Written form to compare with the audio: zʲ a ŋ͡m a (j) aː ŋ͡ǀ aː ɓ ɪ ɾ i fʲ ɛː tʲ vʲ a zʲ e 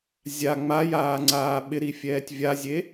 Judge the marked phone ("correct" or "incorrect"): correct